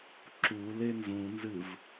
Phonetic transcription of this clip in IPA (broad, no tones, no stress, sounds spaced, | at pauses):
ǁ u l e n z ũ n z ɨ v